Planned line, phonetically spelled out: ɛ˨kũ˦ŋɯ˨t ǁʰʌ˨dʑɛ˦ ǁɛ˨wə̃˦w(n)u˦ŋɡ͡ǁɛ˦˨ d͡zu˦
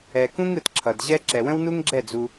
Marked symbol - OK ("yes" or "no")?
yes